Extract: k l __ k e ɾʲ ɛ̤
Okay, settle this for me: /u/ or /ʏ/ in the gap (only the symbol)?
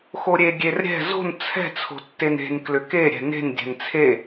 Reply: ʏ